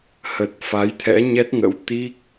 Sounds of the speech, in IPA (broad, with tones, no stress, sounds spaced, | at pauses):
h ə˨˩ t̚ f a˨˦ j t̪ʰ ɛ̰˧˥ ɲ ɛ˦˥ t̚ ŋ ə̰˧˥ w t̪ i˦˥ k̚